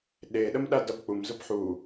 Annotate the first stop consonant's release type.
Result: implosive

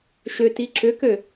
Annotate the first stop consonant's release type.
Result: plain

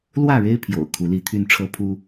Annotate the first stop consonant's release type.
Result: aspirated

